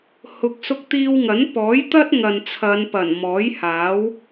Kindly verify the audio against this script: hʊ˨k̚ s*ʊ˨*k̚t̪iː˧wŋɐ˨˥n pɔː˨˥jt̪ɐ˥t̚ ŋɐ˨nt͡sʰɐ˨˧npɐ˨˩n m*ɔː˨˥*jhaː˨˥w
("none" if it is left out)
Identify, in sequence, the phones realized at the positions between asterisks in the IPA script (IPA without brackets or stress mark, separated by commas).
ʊ˧, ɔː˨˥